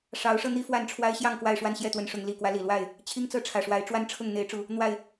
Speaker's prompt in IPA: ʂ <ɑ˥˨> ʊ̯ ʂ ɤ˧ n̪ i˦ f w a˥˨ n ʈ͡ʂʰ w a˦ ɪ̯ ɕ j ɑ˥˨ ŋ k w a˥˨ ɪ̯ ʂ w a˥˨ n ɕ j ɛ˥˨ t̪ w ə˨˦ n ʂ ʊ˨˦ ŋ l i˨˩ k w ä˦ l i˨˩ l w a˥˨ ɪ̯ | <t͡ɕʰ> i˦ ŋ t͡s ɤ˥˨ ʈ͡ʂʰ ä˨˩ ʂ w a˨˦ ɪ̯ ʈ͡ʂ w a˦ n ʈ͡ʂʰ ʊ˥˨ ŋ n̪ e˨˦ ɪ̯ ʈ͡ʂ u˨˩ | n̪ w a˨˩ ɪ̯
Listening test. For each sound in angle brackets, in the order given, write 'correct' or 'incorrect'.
incorrect: ɑ˨˦, correct

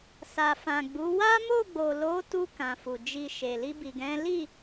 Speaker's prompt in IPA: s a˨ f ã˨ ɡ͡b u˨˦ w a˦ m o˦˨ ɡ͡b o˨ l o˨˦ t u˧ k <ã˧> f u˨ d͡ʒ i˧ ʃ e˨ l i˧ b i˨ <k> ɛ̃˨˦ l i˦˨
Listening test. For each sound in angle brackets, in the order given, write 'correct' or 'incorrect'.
incorrect: ã˨, incorrect: ɡ

